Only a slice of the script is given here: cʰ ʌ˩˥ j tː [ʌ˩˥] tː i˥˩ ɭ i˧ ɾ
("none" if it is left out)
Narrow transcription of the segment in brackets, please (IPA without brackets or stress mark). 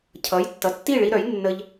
ʌ˩˥